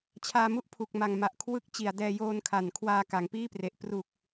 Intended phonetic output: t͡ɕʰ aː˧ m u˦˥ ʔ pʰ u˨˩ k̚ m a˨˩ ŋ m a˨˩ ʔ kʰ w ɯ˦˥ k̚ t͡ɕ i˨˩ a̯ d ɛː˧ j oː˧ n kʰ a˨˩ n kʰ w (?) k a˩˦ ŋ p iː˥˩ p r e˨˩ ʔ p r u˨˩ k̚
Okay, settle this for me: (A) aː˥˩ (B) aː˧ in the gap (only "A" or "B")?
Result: B